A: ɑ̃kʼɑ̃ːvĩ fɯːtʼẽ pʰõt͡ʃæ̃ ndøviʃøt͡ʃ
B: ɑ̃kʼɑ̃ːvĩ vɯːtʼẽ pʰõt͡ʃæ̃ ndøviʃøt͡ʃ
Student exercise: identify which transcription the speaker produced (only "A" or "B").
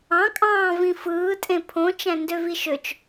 A